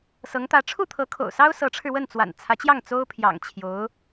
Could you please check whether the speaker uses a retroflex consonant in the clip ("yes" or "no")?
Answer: yes